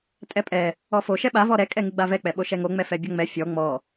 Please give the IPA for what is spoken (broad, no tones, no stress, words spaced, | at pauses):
tʼɛpʼɛ | ɔfo ʃɛɓa vɔɾɛ kʼɛŋɨɡ͡bavɛ k͡pɛɓoʃɛŋo ŋ͡mɛfɛbʲɔŋ͡mɛ fʲɔ ŋ͡mɔ